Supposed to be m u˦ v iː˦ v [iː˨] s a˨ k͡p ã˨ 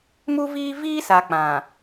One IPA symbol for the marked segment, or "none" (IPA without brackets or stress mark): iː˦